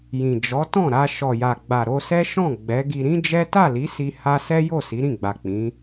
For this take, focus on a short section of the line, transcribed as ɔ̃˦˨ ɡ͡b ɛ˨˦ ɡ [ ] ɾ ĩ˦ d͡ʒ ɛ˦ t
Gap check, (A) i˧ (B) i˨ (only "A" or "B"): A